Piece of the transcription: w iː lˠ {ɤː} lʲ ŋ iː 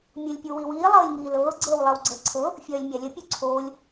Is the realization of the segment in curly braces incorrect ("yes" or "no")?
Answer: no